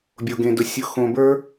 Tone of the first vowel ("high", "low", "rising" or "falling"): low